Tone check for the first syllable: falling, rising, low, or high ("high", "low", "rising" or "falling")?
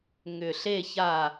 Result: low